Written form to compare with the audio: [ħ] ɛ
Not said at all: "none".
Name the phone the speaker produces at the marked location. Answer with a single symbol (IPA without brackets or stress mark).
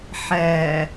ħ